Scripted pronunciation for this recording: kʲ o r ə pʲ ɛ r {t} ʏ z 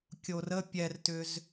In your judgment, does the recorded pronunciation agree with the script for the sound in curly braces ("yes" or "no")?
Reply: yes